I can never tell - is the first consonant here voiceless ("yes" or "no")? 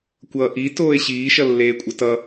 yes